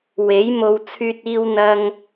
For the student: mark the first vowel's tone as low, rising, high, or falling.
rising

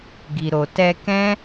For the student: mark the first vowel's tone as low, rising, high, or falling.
low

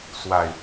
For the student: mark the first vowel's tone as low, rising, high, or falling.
low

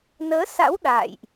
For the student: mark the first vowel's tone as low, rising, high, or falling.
rising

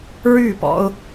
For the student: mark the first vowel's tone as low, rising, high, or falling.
falling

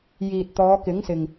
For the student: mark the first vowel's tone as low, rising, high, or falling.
low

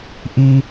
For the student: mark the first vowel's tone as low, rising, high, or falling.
high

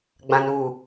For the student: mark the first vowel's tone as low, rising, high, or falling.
low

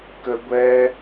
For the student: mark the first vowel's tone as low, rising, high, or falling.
high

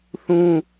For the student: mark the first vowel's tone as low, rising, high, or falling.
high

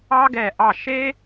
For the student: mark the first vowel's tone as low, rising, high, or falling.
high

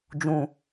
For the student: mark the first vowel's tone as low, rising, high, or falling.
low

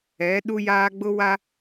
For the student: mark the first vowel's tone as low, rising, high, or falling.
rising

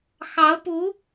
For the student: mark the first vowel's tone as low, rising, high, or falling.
rising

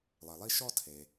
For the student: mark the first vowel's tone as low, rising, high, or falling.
low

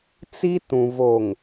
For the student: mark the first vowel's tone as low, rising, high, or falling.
high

